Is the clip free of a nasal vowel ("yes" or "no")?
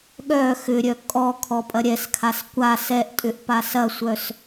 yes